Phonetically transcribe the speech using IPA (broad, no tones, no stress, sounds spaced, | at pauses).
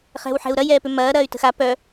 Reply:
χ ɛ̤ w ħ ɛ̤ u̯ ɾ ɐ j ɛː p ʏ m ɐː ɾ ɐː y̯ t ə̤ x a p œ